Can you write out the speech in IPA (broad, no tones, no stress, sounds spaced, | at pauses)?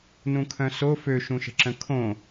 n ũ kʰ œ̃ s o f ø ʃ ũ ʃ ə̤ ǁ ə̃ kʰ õ